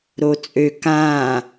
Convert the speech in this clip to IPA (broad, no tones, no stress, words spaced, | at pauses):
ɾot͡sʼø kã